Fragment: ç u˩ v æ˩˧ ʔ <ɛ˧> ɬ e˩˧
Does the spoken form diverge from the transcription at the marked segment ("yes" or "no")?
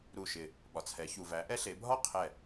no